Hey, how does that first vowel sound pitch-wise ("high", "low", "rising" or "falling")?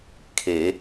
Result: rising